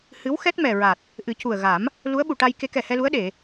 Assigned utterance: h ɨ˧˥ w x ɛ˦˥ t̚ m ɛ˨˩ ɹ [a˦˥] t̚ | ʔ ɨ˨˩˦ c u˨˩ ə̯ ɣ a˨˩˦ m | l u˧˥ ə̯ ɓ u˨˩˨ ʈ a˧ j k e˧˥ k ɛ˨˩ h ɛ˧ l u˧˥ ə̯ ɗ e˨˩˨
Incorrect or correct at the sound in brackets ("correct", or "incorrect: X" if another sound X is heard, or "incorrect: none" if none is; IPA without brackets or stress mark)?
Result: incorrect: a˨˩